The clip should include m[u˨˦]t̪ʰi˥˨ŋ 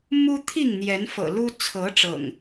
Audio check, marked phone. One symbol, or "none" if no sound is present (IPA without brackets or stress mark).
u˦